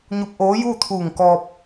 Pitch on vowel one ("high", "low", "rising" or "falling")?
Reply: rising